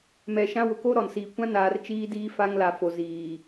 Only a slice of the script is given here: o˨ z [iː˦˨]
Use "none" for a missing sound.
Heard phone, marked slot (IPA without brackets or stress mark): iː˨